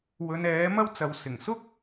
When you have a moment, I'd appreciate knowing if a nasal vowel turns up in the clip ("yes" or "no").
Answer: no